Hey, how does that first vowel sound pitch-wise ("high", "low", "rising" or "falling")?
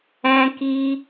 high